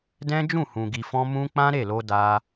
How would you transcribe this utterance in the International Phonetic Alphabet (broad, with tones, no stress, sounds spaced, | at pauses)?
d ɛ̃˦ d͡ʒ ũ˦˨ h ũ˨ ɡ i˨ f ɔ̃˧ m ũ˦ k͡p ã˦ ɾ e˦˨ l o˧ d a˧